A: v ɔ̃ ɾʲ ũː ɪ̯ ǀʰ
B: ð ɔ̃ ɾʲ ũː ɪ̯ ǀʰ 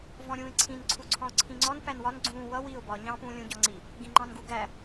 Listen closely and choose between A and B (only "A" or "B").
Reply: A